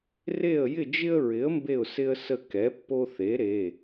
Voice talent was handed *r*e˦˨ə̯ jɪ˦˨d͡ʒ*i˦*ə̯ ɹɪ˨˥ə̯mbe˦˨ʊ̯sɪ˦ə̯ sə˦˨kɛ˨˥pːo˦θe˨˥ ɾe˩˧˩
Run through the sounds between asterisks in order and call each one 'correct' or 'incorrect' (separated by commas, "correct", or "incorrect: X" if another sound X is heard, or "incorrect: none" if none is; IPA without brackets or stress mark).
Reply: correct, incorrect: ɪ˦